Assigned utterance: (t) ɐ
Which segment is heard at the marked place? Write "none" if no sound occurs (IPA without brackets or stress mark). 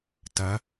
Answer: t